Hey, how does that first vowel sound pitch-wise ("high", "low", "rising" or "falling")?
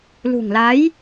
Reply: low